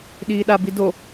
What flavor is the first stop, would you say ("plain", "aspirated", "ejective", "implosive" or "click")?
implosive